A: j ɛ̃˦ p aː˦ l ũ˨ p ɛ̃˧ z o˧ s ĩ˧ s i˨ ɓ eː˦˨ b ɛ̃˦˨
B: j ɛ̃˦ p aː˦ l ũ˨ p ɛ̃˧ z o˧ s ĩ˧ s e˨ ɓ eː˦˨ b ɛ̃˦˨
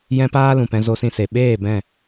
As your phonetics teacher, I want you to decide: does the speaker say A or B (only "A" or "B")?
B